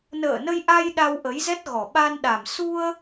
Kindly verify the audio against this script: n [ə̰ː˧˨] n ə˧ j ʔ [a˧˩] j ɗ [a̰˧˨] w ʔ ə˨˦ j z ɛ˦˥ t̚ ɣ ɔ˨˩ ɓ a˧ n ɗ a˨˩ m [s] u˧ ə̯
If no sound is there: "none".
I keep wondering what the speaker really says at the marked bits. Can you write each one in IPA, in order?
ə̰ː˧˨, a˧, a˧, s

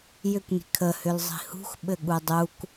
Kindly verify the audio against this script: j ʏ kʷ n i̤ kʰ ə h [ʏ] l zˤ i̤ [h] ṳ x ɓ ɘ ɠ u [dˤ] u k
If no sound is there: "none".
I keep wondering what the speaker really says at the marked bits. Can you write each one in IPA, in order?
ʏ, h, dˤ

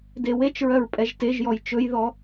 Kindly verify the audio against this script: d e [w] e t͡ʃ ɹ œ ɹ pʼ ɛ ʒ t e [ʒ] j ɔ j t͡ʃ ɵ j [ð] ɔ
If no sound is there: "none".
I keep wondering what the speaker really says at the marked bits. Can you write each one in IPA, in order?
w, ʒ, ð

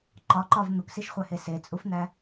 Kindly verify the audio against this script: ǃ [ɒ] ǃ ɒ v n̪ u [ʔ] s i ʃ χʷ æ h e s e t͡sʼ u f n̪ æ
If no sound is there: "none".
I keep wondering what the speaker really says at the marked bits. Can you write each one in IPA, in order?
ɒ, k

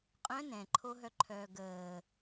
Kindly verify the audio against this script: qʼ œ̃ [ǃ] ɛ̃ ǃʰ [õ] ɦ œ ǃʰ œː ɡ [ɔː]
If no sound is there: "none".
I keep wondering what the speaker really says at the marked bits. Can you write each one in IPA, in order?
n, o, əː

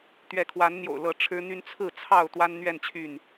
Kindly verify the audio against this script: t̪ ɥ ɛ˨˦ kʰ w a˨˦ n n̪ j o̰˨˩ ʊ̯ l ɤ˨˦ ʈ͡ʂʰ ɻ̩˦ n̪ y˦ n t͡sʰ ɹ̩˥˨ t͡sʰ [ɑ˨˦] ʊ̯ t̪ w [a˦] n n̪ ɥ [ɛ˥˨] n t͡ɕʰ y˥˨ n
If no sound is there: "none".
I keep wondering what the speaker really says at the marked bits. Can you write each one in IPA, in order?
ɑ˥˨, a˦, ɛ˥˨

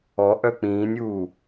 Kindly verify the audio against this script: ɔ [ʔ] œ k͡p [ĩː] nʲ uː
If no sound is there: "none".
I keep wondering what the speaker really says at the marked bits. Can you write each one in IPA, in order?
ʔ, ĩː

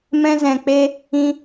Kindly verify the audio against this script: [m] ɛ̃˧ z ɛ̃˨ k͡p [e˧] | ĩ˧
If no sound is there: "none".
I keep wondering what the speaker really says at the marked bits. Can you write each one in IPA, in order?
m, e˧

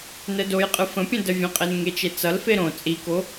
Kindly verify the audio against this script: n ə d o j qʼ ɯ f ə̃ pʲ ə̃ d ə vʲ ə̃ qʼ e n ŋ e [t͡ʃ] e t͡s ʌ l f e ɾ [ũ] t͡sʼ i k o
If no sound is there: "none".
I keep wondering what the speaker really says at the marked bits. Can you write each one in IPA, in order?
t͡ʃ, õ

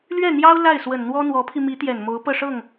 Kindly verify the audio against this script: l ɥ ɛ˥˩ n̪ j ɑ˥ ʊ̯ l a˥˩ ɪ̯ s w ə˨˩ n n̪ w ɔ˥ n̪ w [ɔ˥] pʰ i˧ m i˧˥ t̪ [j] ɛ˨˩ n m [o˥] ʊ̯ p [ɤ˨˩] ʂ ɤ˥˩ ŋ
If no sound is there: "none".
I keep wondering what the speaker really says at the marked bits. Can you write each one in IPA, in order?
ɔ˧˥, j, o˧˥, ɤ˥˧

